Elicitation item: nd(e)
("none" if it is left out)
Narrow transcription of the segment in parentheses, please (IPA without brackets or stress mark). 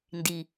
i